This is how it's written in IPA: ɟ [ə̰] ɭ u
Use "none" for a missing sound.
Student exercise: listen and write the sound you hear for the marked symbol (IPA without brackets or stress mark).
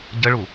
ə